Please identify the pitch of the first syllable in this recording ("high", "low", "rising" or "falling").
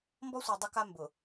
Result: high